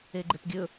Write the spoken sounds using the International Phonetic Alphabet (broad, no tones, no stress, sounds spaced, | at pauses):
e ɡ͡ǃ e p ɡʲ ɵ